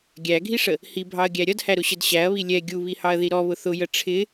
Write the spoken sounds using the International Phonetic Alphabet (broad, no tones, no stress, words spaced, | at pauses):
ɡʲæɡʱiʂə | hibʱɑɐ̯ɡʲæ ɾʲʌdhæɾʊɕəd ɕæɐ̯βi lʲɛ ɡʲuβihɑɐ̯ði ɾɔβʊ θʊjə ʈ͡ʂʰɪ